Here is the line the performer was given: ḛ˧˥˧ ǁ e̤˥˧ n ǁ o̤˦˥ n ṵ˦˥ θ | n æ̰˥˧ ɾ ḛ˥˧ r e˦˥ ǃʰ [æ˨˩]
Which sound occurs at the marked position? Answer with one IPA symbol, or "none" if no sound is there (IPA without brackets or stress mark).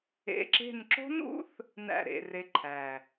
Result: æ˨˩